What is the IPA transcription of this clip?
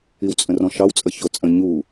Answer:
i w t͡sʼ ə̃ r ɔ̃ ʃ ɑ w t͡sʼ ə ç o t͡sʼ ə̃ ɲ u

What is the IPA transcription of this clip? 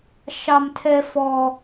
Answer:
ʃ ɑ m tʰ ɛ f ɔ

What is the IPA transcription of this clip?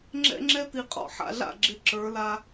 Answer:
ŋ͡ǁ ɛ̰˦ ŋ͡ǁ ɛ˦ t̪ i˨ qʼ ɔ̰˨ ħ a̰˨ ɮ a̰˦˨ ɡ͡ǁ ɪ˨˦ ǁ ə˞˨˦ l a˦

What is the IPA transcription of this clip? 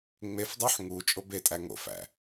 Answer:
ŋ͡m e f dˤ y ħ ŋ u t͡ʃʼ o b e tʼ æ ŋ o̰ f æ̰

